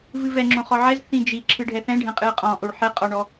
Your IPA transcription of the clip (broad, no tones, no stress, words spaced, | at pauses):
vɨvɛŋ͡ǁõχɔ ʕɛz θĩd͡ʒi ǁʰɨɖʱɛθɛ̃ɖʱɛ̃ qʼɨə̯qʼɔ̃ʔoɭ ħɛqʼɔɳɔ